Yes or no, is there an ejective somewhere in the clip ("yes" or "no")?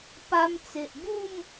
no